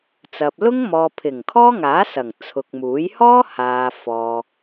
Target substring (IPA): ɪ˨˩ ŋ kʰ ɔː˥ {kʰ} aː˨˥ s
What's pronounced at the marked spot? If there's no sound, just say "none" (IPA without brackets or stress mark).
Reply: ŋ